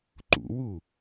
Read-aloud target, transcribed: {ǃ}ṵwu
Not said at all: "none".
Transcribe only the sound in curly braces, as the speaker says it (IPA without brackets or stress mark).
ǃ